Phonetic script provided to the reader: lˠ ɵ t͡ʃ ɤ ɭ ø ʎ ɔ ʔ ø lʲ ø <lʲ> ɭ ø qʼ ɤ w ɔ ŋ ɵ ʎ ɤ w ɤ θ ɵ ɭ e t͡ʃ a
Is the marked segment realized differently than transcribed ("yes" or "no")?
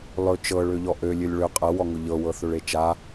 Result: no